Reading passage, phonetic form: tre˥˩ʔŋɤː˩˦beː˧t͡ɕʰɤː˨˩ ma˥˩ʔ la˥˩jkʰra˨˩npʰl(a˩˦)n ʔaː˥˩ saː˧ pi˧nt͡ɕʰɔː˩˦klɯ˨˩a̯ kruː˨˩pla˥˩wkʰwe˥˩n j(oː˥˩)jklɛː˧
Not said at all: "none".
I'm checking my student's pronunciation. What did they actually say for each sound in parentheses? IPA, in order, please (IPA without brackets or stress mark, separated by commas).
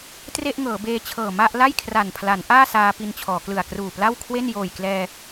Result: a˩˦, oː˨˩